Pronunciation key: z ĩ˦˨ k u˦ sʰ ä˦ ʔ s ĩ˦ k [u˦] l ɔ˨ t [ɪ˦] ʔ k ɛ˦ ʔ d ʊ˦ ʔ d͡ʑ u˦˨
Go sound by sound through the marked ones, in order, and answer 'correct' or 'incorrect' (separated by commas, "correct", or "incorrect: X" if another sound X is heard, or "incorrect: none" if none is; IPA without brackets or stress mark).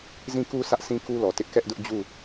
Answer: correct, correct